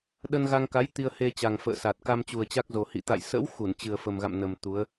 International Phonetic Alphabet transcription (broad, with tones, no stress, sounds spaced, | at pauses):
ɗ ə˧ n ɣ a˧ ŋ k a˨˦ j t̪ i˧ ə̯ h e˧ t͡ɕ a˨˩ ŋ f ə̰ː˧˨ s a˨˩ t̚ k a˧ m t͡ɕ u˨˩ ə̯ t͡ɕ a˦˥ k̚ z o˨˩ h ḭ˧˨ t̪ a̰˧˨ j s ə̰˧˥ w x u˧˩ n t͡ɕ ɨ˨˩ ə̯ f ə˨˩ m ɣ a̰˧˨ m n ə˨˩ m t̪ u˨˦ ə̯